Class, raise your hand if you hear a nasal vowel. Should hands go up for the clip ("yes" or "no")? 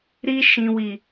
yes